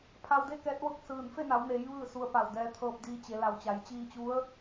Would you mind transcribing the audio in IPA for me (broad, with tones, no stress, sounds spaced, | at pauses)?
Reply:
pʰ a˧ w d e˥˨ k ɛː˧˥ t̚ ʋ ɤː˥˨ k̚ s ɯː˧˩ n f e˥˨ n a˩˧ w n eː˩˧ j ʋ ɯː˥˨ s u˧ ə̯ p a˧˩ w d ɛː˧ t̪ʰ ɤː˧ p̚ d iː˧ t͡ɕ e˩˧ l a˩ w t͡ɕ a˩˧ j t͡ɕ iː˧ t͡ɕ u˧˥ ə̯